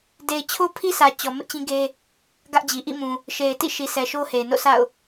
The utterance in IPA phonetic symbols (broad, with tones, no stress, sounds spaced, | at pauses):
d e˨ ɪ̯ t͡ɕʰ o˦ pʰ i˦ s ä˨ t͡ɕ ɔ˨ m ɪ˦ ʔ t͡ɕ ĩ˦ ɡ e˦ | ɡ ä˦ ʔ d͡ʑ i˨ ʔ ḭ˦˨ m ũ˨ | ʃ e˨ ɪ̯ t ḭ˦˨ ʃ i˨ sʰ ɛ˨ ʃ o˦ h e˨ ɪ̯ n o̰˦˨ sʰ a̰˦˨ ʊ̯